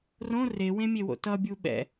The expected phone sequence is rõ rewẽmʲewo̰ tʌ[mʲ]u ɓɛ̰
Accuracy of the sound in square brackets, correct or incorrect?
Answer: incorrect